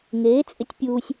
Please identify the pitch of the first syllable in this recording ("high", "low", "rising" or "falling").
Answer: rising